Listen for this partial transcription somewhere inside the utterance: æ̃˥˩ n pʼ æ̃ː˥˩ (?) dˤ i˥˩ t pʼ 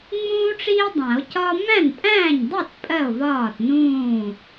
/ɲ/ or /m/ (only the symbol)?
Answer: ɲ